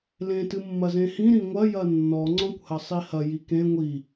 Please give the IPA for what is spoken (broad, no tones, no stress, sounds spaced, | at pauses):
l ẽ t ɨ mː ɐ z ẽ h ĩ ɾ ĩ ŋʷ ɐ j ɐ nː ɔ ŋ͡ǀ ɔ̃ kʷ h ɐ sˤ i h ɐ j i k ẽ ŋʷ i